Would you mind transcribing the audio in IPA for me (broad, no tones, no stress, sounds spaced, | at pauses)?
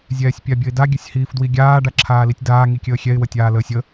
zʲ ɛː sʲ pʲ a bʲ ə ɪ̯ d a ɡʲ ə sʲ h iː f d w i ɡʲ aː ɖ a ǁʰ aː l i tʲ d aː ŋ i kʲ əː xʲ ɛ ɪ̯ w ə tʲ aː l əː sʲ ə